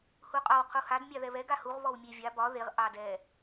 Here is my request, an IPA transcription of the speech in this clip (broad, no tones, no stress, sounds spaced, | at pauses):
h u qʼ ɒ w qʰ u h a d mʲ ɑ ð ɛ β ɛ ɡ a h u ʁ β ɔ w mʲ e vʲ a b ɒ ð e ʁ ʔ ɑ d ɛ